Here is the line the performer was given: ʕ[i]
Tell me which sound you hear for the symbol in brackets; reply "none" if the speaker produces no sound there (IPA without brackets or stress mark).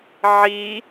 i